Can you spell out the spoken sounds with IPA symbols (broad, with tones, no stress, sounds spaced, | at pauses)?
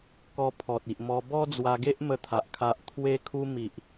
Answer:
k ɔ˧ pʰ ɔ˨ t̚ i˨ ʔ m ɔ˧ b ɔ˦ d͡z w a˧ ɡ e˦ ʔ m ə˧ t̪ʰ a˨ ʔ kʰ a˨ ʔ t̪ʰ w e˧ kʰ u˧ m i˨ ʔ